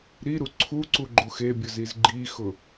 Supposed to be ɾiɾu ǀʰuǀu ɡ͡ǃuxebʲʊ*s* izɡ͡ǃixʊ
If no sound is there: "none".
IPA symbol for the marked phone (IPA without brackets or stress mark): z